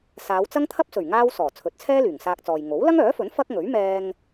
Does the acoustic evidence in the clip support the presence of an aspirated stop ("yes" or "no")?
yes